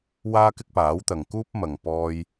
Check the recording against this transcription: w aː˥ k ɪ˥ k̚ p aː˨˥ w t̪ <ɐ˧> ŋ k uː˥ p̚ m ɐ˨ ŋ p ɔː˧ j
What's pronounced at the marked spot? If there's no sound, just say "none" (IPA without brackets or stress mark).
ɐ˨